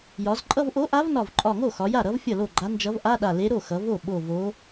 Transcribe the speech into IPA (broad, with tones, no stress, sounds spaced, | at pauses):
j ɒ˩˧ z ǃʼ ʌ˧˥˧ v ʔ o˧˥ ʔ a˧˥ v n ɒ˧˩ v ǃʼ ɒ˧˩ ŋ o˥˩ x ɒ˩˧ j a˥˩ ɾ ʌ˧˥ v fʲ ʌ˥˩ l o˥˩ ɡ͡ǃ a˧˥ n d͡ʒ ʌ˧˥ v ʔ a˧˥˧ ɗ a˧˩ l e˧˥ ɾ o˥˩ x ʌ˩˧ v o˥˩ ɓ o˧˩ v o˧˥